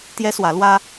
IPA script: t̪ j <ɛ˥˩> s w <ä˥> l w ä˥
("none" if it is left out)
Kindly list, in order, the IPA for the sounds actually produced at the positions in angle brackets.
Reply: ɛ˥, ä˧˥

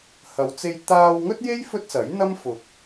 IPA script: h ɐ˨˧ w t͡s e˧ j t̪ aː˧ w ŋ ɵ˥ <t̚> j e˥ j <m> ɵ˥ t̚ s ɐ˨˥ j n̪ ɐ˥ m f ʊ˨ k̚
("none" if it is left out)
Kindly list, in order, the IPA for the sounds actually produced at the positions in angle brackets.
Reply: t̚, f

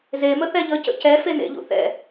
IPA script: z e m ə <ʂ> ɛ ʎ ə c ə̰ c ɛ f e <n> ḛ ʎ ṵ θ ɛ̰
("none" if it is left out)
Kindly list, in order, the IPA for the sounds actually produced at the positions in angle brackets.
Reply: θ, n

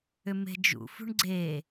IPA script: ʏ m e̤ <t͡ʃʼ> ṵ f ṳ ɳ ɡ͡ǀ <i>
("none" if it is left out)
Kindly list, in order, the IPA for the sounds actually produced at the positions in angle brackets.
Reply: d͡ʒ, e

